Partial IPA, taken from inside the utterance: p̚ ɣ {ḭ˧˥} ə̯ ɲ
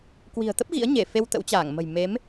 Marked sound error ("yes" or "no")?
no